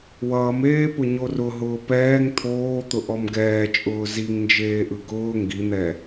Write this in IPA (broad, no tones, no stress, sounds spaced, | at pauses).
w ʌː m eː p ʊ ɲ o r ʊ ɦ ʊː p ɛː ŋ t̪ʰ oː t̪ ʊ ʔ ɔ m ɡ ɛː t͡ʃʼ ʊː z i ŋ n d͡ʒ eː ʔ ɯ ɡ ʊː ŋ ɡ i n̪ ɛ